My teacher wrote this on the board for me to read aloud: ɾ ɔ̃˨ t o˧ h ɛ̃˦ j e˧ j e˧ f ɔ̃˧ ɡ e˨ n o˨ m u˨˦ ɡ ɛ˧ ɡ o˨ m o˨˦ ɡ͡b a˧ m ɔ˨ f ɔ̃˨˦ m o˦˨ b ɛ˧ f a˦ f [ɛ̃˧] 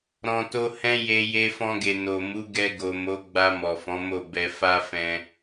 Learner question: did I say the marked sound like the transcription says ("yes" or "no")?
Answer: yes